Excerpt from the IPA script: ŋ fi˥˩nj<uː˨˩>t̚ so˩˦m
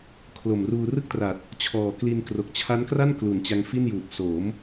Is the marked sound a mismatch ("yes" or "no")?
no